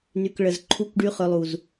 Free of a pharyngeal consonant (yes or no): yes